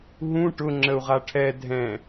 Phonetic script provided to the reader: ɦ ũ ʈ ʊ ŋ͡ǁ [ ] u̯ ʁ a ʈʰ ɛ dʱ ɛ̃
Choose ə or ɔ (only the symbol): ə